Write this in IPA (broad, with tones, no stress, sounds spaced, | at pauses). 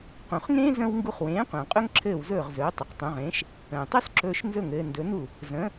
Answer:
q ũ˩ χ ŋ ẽː˥ z ə̃˥ w ŋ ɡ u˧ χ w ẽː˩˥ qʷ ə̃ː˩ qʼ ɵ˥ ŋ ǁʰ ɘː˥˩ w z ɵː˥˩ ʁ z ɵː˩˥ tˤ ə˩˥ q tˤ ũ˩˥ ʁ ẽː˩˥ ʃ | ə̃ː˩ tˤ ɵ˥ s ǁ ɵː˧ ʃ n z ɵ˥˩ ŋ ɘː˧ n d ɵ˩˥ n u˥˩ | z ə̃ː˩˥